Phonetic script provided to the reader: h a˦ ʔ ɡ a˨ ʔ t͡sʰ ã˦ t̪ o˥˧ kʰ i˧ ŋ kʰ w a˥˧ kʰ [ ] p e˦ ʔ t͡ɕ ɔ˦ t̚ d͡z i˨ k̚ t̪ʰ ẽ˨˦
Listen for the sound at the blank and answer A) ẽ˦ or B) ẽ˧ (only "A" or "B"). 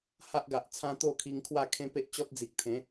A